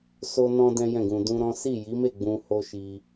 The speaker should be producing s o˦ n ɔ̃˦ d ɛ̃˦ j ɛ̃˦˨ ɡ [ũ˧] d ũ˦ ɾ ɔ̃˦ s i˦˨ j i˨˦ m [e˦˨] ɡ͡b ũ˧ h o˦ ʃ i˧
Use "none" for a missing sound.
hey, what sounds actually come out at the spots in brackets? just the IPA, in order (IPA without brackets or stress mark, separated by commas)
ũ˧, e˦˨